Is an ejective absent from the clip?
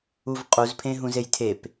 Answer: no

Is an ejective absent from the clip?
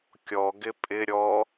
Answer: no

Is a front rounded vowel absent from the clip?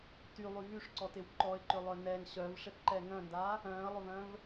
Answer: no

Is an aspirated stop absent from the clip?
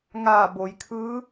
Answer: no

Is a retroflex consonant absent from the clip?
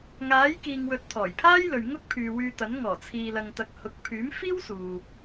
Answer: yes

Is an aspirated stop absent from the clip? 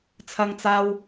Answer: no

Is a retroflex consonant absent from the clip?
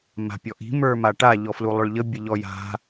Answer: no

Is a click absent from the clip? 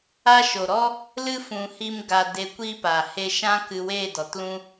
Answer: yes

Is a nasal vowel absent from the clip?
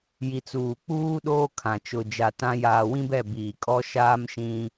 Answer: no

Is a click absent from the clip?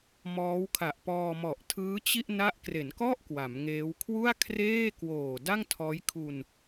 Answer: yes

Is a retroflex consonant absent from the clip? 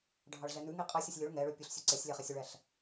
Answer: no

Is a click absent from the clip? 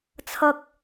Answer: yes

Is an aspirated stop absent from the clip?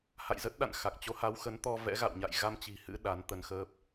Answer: yes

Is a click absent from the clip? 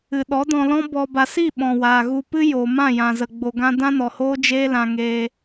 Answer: yes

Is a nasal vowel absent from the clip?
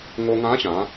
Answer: no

